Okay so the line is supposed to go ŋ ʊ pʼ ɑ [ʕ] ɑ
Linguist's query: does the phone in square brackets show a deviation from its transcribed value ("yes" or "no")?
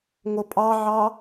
no